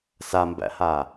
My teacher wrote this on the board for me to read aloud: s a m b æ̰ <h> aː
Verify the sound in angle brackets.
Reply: correct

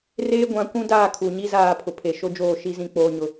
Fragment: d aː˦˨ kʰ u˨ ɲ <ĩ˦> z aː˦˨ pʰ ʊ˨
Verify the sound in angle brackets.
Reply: incorrect: i˦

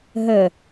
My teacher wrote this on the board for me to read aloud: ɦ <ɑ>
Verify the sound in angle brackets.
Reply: incorrect: ə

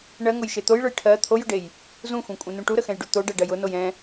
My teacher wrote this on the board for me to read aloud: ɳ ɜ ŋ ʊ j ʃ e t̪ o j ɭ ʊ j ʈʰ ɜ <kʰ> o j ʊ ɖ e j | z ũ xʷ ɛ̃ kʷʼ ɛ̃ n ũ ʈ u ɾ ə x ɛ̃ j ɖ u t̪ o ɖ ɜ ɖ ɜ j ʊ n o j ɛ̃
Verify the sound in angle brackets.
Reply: incorrect: t̪ʰ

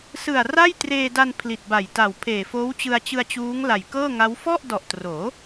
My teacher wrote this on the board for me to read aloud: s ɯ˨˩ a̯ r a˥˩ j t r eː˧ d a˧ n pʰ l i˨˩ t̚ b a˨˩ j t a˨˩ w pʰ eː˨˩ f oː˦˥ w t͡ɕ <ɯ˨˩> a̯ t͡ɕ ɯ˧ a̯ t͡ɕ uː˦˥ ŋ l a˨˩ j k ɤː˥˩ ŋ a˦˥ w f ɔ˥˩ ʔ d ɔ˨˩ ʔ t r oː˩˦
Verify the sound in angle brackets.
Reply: incorrect: ɯ˧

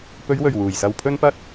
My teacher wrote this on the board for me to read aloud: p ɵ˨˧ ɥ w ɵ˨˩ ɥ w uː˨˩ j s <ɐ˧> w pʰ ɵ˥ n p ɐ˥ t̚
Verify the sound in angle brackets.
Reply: correct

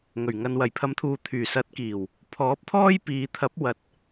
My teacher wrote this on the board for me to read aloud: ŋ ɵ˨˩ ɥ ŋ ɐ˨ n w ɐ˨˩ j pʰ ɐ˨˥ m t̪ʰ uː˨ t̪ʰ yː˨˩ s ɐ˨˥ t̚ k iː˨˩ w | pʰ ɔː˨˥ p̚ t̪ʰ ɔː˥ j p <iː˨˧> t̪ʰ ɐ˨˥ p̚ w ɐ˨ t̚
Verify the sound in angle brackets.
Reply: correct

